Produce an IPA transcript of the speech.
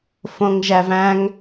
f õ ŋ ʒ æ v æ̃ ŋ

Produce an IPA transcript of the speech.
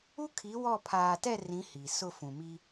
u˦ kʰ i˨˦ w ɔ˦˨ pʰ aː˨ t ɛ˦˨ r ĩ˨˦ h i˨ s ʊ˦˨ f ũ˨ m i˦

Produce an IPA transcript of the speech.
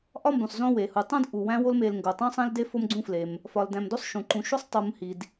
ʔ ɒ˥ m b ũ˩ sˤ z õ˥ w e˩ h u˨ tˤ ũ˥ d ʔ u˩ w æ̃˦ w o˦ l m e˨ l ŋ ɡ o˩ tˤ õ˥ sˤ ẽ˥ l d e˥ f o˥ m ɡ͡ǀ ũ˥ f l e˩ m | f ɒ˨ l d æ̃˨ m d o˦ sˤ ʃ ũ˩ ǃ ũ˨ ʃ u˦ sˤ tˤ u˨ m h i˩ d

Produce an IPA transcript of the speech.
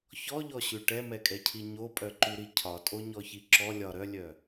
ç ɔ ʎ ɔ ɕ ʉ ʈ ɛ m ɛ kʼ ɛ cʰ i ɲ o pʼ œ ǃ ʉ ɾ i cʰ ɒ tʼ o ɲ ɔ ç i ǁ ɔ lʲ ɒ ɾ œ lʲ œ

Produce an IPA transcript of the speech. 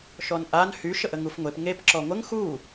ʃ ɔ n ʔ a n h y ʃ ə ʔ ə ŋ u f ŋʷ e p ŋ e p ǁ ɔ ŋʷ ə ŋ x u

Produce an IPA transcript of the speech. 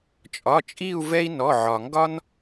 t͡ʃʼ ɒ˩˧˩ t͡ʃʼ i˦˨ u̯ v ɛ˦ i̯ n ɔ˩˧˩ ʕ ɒ˩ ŋ ɡ ɒ˦ n

